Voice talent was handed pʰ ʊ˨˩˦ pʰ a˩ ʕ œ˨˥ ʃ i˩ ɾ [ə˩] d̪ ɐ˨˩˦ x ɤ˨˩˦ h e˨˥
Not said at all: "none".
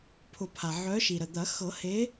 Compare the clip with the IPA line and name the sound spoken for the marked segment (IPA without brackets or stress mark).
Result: ə˩